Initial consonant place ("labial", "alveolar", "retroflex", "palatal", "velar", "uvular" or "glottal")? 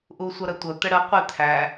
glottal